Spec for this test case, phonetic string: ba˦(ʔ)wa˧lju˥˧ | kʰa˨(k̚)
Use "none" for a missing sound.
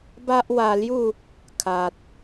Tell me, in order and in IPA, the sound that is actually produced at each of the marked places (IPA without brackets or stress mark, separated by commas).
ʔ, t̚